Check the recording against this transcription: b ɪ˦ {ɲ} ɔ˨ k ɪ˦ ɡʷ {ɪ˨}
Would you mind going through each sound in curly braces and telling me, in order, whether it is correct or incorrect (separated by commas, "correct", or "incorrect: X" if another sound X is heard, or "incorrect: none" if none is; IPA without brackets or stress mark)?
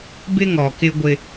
incorrect: ŋ, incorrect: ɪ˦